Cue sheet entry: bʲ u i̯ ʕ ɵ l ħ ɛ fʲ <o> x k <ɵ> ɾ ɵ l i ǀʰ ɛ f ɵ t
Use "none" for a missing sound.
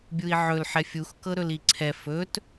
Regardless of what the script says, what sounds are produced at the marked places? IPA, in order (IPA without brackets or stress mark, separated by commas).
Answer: u, ɤ